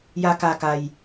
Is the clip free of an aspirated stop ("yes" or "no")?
yes